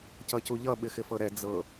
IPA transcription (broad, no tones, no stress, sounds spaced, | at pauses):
c ʌ c u ʎ ʌ ɓ ɪ x ɪ f ɤ ɾ ɛ d͡z ɤ